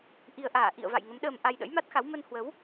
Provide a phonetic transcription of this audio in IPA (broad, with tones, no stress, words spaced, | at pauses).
ʔi˨˩ə̯ʔaː˧˩ ʔḭ˧˨ə̯va̰˧˨j ŋə˨˦mɗəː˧m ʔa˧jɗə̰˧˥jma˦˥t̚xa˨˦w mə˧nhwə˨˦w